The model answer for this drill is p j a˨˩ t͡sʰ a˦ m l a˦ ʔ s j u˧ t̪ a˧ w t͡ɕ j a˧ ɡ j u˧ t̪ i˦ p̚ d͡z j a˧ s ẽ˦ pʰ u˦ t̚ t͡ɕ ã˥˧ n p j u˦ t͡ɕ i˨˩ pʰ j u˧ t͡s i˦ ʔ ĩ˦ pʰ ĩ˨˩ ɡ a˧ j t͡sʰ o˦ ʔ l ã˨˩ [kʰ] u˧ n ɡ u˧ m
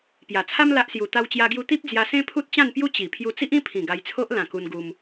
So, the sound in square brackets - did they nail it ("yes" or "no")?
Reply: no